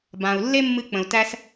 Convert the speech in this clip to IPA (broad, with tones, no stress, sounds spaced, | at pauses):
b ã˩ u̯ lː e˥ mː ɨ˧ k͡p ə̃˩ u̯ t æ˧ s